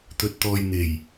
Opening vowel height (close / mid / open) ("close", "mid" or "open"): mid